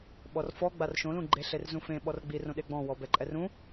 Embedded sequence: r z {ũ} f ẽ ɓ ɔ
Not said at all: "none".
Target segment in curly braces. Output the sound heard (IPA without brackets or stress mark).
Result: ũ